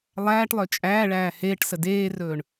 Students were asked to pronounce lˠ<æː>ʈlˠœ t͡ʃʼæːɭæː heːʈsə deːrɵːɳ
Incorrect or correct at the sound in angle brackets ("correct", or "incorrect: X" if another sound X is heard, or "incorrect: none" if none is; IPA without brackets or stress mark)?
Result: correct